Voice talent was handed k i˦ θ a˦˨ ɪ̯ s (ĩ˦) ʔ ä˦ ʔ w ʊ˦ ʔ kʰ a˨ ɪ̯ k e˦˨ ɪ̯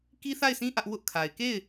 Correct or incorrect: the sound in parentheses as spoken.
correct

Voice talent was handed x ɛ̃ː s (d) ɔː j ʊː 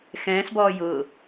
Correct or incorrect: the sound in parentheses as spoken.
incorrect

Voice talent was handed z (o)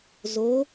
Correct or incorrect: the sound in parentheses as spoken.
correct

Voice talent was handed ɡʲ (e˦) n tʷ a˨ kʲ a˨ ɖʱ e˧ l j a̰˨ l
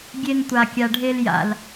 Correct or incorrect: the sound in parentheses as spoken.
incorrect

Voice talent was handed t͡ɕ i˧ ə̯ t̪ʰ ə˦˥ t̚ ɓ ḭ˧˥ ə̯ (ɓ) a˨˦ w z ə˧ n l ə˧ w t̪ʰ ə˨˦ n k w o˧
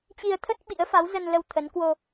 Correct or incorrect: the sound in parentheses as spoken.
incorrect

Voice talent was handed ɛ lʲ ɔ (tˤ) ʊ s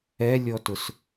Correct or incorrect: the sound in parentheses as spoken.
incorrect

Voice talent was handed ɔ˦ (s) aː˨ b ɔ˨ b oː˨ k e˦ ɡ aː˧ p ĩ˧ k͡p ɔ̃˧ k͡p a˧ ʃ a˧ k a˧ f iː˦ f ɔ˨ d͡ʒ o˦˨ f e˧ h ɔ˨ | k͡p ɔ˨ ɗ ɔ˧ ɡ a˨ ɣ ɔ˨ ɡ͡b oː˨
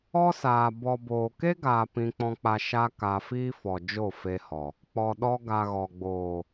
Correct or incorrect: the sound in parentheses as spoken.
correct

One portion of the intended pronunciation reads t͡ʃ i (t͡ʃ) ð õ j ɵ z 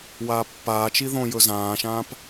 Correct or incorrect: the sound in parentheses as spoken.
incorrect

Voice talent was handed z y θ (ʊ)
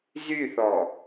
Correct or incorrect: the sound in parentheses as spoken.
incorrect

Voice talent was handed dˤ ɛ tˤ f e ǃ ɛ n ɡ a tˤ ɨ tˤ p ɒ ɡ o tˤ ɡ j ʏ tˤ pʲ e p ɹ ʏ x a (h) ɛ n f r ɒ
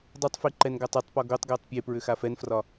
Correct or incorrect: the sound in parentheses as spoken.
incorrect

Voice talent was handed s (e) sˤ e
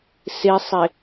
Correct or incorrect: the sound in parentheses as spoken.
correct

